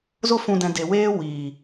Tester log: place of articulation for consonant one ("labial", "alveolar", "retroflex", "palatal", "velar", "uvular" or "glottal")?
alveolar